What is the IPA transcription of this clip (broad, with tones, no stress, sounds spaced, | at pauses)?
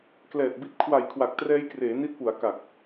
k l ɛː˨˩ t̚ b i˦˥ t̚ kʰ w a˨˩ j kʰ w a˨˩ k̚ t r ɛː˦˥ j k r eː˩˦ n i˦˥ t̚ p u˩˦ a̯ k a˨˩ k̚